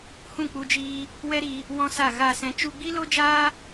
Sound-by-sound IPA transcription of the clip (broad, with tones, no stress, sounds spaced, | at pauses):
h ũ˦˨ k͡p u˧ d͡ʒ iː˧ | w ɛ˦ ɾ i˧ | w ɔ̃˦ s a˦˨ ɣ a˦˨ s ɛ̃˧ t͡ʃ u˧ ɡ͡b i˦ l o˦ d͡ʒ aː˦